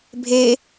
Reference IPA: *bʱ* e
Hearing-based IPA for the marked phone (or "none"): bʱ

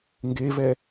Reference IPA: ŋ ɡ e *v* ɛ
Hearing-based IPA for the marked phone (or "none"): v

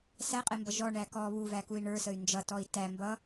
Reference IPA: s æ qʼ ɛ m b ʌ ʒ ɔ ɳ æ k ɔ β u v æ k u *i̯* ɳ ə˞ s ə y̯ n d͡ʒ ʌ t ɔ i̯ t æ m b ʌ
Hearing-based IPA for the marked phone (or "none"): i̯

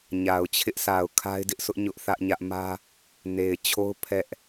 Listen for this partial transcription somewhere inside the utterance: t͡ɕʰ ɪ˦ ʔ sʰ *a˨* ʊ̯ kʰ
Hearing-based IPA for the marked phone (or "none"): a˨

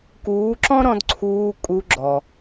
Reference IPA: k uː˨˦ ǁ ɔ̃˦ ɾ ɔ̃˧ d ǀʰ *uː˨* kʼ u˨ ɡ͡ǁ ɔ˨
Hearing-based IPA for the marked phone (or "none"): uː˨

